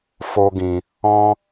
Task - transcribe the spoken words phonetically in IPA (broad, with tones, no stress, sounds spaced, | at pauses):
f o˧ ɡ ĩ˨ | ɔ̃˦